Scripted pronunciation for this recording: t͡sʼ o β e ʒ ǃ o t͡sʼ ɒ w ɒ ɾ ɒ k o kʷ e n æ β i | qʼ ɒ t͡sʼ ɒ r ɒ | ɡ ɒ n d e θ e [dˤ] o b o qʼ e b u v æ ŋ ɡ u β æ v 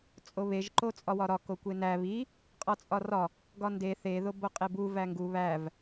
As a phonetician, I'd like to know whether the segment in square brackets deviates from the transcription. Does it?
yes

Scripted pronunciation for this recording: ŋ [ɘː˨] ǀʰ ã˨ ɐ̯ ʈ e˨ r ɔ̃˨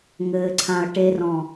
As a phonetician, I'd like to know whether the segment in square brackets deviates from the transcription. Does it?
no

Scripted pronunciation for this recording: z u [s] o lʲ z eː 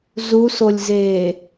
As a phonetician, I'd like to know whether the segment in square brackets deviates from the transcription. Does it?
no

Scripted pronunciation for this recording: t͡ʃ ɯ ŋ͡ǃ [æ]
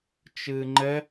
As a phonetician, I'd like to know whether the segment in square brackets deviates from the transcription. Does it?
yes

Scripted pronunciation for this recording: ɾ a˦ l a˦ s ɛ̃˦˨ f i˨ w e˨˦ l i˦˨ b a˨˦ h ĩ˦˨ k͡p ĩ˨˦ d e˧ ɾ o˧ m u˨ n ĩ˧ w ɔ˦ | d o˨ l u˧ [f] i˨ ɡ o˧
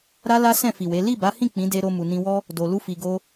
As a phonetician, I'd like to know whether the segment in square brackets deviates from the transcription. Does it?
no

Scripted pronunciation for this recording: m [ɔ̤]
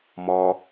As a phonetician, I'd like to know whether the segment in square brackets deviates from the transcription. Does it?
yes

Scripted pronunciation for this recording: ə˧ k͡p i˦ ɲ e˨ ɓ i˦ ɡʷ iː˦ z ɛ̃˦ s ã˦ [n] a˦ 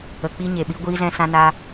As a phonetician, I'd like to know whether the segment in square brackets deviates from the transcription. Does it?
no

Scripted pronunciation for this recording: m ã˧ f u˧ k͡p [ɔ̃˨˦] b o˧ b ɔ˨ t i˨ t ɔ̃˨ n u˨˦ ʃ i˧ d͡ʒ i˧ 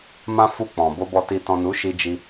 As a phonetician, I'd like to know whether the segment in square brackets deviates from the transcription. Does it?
yes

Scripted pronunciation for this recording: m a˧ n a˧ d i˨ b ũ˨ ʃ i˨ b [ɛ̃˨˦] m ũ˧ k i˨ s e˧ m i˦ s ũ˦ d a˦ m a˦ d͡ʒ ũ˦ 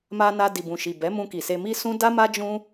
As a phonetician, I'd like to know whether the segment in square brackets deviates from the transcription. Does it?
yes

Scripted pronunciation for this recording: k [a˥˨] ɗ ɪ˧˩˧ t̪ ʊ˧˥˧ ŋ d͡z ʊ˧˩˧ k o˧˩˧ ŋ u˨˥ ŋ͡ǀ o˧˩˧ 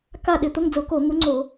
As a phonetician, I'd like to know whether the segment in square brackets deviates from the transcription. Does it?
no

